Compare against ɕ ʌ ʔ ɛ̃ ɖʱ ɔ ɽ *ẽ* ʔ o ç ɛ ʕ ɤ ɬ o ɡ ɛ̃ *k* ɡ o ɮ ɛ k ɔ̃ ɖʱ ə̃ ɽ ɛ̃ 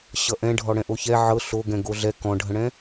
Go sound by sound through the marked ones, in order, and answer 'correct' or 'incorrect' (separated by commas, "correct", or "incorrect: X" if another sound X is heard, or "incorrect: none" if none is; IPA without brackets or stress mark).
incorrect: ɛ̃, incorrect: none